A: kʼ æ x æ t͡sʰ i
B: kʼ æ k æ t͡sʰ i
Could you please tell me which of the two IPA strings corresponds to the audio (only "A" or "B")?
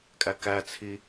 B